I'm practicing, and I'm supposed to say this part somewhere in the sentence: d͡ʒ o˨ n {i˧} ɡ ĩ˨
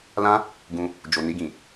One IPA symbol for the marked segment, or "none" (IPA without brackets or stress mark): i˧